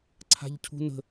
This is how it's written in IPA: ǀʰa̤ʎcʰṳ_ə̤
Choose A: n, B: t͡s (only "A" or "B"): A